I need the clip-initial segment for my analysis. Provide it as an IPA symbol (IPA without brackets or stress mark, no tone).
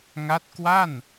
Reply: ŋ